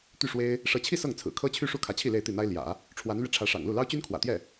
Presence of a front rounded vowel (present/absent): present